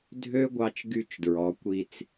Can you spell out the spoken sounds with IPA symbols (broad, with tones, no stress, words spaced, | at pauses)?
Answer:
dʱø˦ ɡʷɑ˦t͡ʃɡy˦˨t͡ʃdɹɔ˨˦ kʷi˧t͡s